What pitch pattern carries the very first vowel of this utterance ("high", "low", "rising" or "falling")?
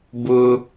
high